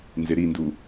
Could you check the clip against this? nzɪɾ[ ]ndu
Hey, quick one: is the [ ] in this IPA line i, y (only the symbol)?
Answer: i